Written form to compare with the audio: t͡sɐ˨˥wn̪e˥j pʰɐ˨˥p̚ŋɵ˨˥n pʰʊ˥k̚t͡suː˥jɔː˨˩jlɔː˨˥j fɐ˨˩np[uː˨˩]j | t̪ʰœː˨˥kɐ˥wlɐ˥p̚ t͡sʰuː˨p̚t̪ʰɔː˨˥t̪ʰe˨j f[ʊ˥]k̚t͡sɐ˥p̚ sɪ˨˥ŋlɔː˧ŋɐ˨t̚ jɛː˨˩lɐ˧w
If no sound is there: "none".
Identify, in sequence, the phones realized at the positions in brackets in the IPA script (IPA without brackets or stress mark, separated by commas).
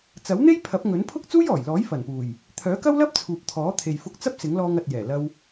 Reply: uː˨˩, ʊ˧